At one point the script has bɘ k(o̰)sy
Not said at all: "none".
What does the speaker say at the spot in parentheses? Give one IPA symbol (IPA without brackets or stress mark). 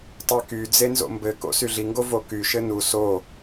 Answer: o̰